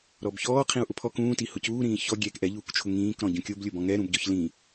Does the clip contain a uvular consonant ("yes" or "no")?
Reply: yes